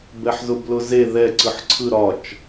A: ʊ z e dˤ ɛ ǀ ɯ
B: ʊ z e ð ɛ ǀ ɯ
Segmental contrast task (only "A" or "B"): B